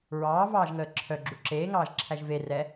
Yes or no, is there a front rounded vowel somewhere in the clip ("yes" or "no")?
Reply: yes